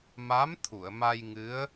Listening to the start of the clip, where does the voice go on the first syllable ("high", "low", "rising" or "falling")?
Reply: rising